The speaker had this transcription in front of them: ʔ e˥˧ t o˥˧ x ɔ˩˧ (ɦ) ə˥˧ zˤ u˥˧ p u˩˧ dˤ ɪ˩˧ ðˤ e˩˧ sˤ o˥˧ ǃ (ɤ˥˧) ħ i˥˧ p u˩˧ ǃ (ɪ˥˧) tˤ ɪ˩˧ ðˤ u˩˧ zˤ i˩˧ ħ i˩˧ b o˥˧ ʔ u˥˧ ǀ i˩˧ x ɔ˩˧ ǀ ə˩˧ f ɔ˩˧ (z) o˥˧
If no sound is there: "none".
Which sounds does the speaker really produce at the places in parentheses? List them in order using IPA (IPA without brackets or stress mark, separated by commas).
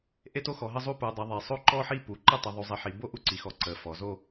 ɦ, ɔ˥˧, ɪ˥˧, z